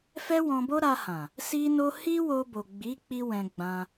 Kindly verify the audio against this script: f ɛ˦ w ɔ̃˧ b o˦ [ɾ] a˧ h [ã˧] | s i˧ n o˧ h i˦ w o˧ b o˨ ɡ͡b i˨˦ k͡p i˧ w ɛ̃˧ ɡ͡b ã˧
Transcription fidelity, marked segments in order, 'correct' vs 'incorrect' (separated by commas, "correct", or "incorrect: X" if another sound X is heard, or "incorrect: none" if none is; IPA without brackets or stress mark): correct, incorrect: ã˨